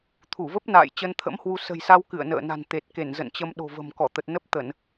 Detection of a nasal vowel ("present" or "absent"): absent